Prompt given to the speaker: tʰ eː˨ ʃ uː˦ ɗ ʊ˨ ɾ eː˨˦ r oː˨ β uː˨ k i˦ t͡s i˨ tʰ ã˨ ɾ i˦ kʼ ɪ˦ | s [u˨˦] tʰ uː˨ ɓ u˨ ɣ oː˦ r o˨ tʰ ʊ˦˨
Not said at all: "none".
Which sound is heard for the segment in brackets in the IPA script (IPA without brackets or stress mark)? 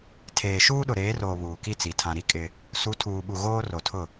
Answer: u˨˦